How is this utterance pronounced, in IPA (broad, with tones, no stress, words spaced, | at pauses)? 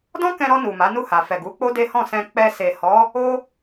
dɔ̃˦kɛ̃˧ɾɔ˧ nu˨ma˨˦nu˦˨ha˨ fɛ˨ɡu˨˦ k͡po˦de˦hɔ̃˦˨ sɛ̃˧ k͡pɛ˧se˨hɔ˨˦ | o˦